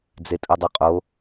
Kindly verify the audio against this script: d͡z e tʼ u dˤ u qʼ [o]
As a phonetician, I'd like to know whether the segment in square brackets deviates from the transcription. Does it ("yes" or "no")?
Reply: no